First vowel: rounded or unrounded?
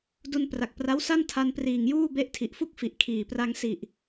rounded